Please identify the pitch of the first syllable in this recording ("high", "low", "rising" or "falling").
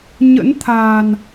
rising